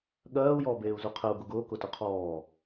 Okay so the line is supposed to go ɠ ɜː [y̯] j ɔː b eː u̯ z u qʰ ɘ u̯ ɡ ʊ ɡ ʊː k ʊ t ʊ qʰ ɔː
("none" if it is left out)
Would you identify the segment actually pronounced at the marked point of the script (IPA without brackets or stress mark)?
u̯